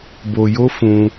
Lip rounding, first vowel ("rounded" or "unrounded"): rounded